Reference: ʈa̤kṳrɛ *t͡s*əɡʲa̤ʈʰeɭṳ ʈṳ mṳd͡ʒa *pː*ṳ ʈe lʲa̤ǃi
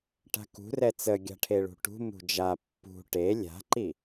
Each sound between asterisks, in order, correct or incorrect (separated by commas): correct, correct